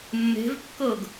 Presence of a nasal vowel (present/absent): absent